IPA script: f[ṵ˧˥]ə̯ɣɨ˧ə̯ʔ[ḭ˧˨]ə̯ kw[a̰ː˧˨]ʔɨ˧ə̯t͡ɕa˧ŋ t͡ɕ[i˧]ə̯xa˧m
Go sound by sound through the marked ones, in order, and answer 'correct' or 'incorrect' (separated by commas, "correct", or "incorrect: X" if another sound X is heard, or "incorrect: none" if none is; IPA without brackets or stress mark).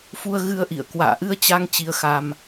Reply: incorrect: u˧, correct, correct, correct